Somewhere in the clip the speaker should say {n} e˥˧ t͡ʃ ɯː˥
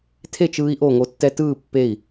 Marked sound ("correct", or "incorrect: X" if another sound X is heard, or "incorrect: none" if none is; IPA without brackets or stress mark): incorrect: tʰ